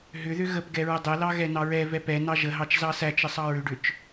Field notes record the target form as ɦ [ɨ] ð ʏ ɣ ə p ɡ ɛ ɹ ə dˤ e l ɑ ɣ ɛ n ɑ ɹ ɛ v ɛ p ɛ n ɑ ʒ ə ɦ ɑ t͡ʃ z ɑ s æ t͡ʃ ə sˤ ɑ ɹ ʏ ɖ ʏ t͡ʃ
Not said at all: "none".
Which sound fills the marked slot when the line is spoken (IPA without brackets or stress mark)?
ʏ